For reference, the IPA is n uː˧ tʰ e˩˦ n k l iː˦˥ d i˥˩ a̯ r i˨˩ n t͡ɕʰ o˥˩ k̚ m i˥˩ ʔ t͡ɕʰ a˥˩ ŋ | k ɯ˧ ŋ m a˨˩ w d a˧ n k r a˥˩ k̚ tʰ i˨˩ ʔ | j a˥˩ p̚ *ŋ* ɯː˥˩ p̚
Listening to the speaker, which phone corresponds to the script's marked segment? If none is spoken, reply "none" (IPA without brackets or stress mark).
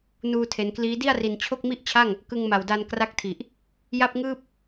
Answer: ŋ